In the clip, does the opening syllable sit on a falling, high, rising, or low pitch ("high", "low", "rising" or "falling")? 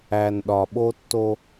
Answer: low